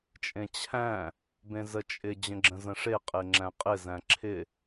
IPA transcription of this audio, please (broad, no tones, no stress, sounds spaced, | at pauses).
t͡ʃʼ ẽ t͡ɕʰ æ̃ | b ẽ z ə t͡ʃʼ ɪ d͡ʑ ə̃ ɡ͡ǁ ə̃ z ə̃ ʂ e qʼ e ŋ͡ǁ æ̃ qʼ ɪ z æ̃ ǁʰ ɪ